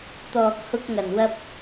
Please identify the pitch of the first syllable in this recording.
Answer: low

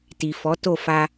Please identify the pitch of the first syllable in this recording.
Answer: low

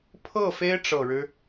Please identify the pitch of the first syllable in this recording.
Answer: falling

